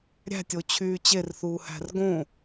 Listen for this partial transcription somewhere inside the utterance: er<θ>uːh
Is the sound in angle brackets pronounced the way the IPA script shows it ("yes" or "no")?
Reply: yes